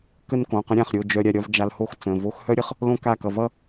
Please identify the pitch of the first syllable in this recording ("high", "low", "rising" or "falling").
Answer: falling